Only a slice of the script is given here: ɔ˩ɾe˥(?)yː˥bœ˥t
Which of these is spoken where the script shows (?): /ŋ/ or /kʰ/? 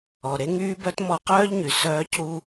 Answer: ŋ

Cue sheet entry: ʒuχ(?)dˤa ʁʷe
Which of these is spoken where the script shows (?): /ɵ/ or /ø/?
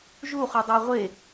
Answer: ɵ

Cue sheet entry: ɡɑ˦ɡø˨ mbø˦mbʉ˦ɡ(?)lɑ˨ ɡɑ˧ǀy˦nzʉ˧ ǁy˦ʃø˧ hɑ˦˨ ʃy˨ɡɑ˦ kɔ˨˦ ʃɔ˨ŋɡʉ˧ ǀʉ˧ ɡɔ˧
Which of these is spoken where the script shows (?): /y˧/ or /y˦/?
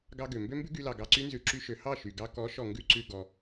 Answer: y˧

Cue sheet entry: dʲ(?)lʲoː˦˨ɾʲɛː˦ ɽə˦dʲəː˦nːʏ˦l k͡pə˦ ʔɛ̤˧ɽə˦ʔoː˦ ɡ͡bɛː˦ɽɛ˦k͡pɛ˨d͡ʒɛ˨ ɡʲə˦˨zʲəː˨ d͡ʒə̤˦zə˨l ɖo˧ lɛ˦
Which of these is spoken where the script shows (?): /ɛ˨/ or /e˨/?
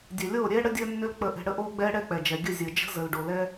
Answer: ɛ˨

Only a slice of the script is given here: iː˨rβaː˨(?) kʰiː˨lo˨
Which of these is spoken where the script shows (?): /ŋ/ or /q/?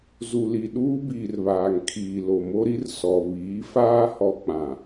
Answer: ŋ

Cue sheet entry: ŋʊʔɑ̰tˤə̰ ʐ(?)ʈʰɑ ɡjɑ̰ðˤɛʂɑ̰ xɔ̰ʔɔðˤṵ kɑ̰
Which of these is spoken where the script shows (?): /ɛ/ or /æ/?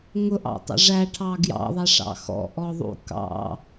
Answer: æ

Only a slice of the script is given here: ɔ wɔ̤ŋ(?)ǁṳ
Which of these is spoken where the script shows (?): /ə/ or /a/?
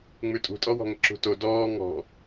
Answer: ə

